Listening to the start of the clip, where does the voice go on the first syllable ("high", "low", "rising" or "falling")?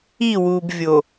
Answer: falling